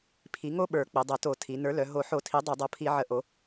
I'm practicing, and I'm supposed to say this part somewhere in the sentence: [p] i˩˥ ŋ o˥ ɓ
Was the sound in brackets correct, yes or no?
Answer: no